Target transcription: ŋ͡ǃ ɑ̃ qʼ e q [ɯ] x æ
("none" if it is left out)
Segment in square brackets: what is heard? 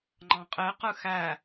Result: ɯ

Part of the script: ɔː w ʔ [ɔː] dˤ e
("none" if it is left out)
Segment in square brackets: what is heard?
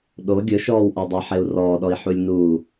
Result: ɔ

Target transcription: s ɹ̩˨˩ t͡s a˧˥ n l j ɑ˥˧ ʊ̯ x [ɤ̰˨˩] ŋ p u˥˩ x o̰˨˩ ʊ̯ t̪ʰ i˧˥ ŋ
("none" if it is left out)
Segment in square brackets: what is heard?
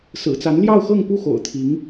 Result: ɤ˥˧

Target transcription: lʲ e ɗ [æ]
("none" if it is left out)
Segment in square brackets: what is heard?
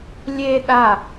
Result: a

